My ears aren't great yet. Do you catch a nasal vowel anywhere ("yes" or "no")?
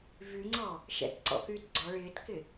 no